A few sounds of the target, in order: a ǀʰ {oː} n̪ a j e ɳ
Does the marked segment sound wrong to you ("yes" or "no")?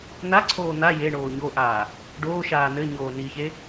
no